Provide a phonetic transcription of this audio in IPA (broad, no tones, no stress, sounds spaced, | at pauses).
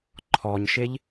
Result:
ǃʰ ɔ ɲ ʃ e ʎ